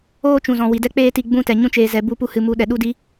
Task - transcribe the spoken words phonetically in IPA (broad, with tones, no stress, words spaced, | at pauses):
oː˦t͡ʃũ˨zɔ̃˨ wi˨dɛ˦k͡peː˦ti˧ ɡ͡bũ˦tɛ˨ ɲũ˧t͡ʃeː˨zɛ˨ bu˧pu˧ hɨ˨mu˨˦ ɗɛ˨ɗu˦di˦